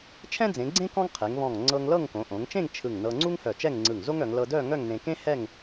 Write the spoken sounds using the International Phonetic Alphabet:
t͡ʃʰ ɛ̃˥ d͡z ẽ˩˧ ɡ͡ǀ ẽ˥ k ɔ̃˥ ŋ qʰ e˩˧ ŋ β ɔ̃˧˩ ŋ ŋ͡ǀ ɤ˧ ŋ l ɤ˥˧ ŋ k õ˩˧ ʔ õ˩˧ ŋ t͡ʃ ẽ˥˧ ŋ t͡ʃʰ ɯ˧˩ ŋ n ɤ˧ ŋ͡ǀ u˥ ŋ h œ˧˩ t͡ʃ ɛ˥˧ ŋ ŋ͡ǀ ɯ˧˩ ŋ z o˥ ŋ œ˩˧ ŋ l ɤ˧ d œ˥˧ ŋ œ˥˧ ŋ n ẽ˧ k ẽ˥ h ɛ˥˧ ŋ

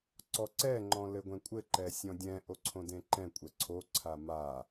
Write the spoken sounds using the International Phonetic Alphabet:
ǀ ɔ ǀ ɛ ŋ͡ǃ ɔ̃ l ɘ ɡʷ ɛ̃ kʷʼ ɘ ǃ ɛ sʲ ɔ̃ dʲ ɛ̃ ʔ o ǀʰ õ d ẽ ǃ ɛ̃ kʷʼ ɛ ǀʰ o ǀʰ a m a

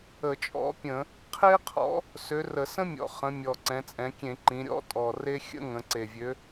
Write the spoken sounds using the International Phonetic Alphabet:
ə˧˩˧ t͡ʃʼ ɔ̰˨˥ pʲ ə̃˧˩˧ | qʰ e˥ qʰ ɔ̰˨˥ | s ø˨˥ r ə˧˩˧ s ə̃˥ mʲ ɔ̰˨˩ χ ə̃˩˧ mʲ ɔ˨˩ ǀ ɛ̃˩˧ t͡sʼ ɛ̃˩˧ kʲ ẽ˧˩˧ ǃ ĩ˩˧ ɾʲ ɔ̰˥ tʼ ɔ˨˩ r e˥ xʲ ə̰˥ ŋ ə̃˩˧ ǀ e˨˩ vʲ ø˨˥

